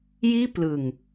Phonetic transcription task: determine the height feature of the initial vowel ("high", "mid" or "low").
high